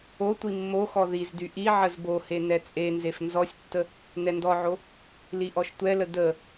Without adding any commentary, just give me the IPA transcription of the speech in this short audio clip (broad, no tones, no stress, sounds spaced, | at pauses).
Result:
o tʷ i mː o x ɔ ð i z d y ʔ i ʕ ə z b o h e n ɛ t͡sʼ e n z e f n z ɔ sʲ tː ə | n ɛ n d ɔ ʕ o | l i ʔ ɔ ʃ tʷ ɛ l ə d ə